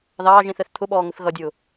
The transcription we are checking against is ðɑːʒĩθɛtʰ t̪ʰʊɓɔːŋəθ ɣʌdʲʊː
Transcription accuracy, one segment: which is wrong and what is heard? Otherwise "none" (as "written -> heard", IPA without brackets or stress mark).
tʰ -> θ